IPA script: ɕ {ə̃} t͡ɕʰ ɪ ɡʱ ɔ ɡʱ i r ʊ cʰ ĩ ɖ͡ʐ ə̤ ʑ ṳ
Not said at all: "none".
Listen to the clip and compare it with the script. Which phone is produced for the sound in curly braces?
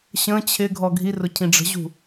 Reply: ə̃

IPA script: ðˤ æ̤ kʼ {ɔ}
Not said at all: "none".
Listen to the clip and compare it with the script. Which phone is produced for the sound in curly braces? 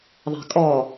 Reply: ɔ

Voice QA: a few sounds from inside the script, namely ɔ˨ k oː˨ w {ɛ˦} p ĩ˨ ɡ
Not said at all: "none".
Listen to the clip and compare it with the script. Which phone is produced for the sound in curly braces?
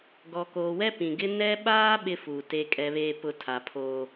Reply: ɛ˦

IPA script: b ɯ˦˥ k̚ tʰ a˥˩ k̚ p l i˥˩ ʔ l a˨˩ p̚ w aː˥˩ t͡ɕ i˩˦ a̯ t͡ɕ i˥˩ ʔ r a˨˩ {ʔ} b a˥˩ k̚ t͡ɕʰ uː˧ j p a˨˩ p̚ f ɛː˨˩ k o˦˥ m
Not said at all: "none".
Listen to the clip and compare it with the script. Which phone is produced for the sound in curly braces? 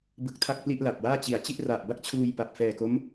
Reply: ʔ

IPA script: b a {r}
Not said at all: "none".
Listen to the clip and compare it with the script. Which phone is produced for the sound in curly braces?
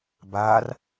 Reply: r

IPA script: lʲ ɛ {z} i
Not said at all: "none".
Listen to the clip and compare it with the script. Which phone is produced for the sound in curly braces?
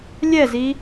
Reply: z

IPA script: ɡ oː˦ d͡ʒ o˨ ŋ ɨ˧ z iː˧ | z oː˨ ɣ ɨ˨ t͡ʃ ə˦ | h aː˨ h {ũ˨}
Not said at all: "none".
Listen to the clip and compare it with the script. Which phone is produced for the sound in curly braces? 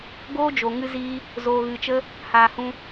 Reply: ũ˧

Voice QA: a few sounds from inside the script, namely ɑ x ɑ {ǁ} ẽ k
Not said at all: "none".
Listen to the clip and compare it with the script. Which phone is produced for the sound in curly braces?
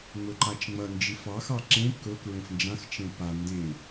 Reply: ǁ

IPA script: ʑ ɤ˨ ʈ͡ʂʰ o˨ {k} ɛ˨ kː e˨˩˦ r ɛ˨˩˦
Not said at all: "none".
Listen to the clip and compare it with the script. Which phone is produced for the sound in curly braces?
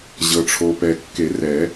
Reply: p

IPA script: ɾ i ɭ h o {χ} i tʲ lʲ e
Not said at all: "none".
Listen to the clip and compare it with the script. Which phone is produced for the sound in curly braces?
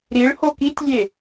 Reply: k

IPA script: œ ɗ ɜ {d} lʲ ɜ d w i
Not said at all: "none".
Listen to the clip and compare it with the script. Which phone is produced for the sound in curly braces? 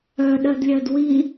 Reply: d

